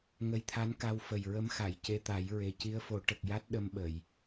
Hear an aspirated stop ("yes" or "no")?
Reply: yes